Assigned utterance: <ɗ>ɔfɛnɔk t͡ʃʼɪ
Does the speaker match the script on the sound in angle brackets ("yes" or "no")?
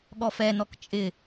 no